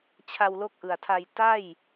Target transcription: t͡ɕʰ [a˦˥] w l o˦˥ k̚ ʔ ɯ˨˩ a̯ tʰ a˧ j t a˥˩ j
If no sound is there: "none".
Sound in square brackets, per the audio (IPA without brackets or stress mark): a˧